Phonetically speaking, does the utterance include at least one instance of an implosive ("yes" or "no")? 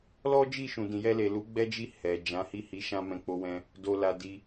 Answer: no